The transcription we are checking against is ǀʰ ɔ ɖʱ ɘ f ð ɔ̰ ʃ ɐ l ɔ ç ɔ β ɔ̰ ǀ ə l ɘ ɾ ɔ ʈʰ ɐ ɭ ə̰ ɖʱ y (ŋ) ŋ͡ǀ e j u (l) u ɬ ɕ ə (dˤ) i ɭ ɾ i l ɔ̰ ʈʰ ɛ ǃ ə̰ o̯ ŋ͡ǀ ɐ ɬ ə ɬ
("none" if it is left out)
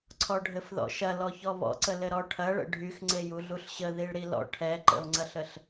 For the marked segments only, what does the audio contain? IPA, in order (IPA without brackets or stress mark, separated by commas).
x, ɮ, ð